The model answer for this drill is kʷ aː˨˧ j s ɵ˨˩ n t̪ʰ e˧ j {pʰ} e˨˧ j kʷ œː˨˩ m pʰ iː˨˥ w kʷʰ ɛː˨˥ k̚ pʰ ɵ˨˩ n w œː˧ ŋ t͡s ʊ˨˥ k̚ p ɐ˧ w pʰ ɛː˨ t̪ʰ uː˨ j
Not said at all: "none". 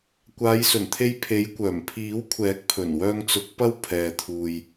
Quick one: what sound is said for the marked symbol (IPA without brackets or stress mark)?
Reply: pʰ